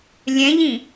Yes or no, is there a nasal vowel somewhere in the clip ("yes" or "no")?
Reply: yes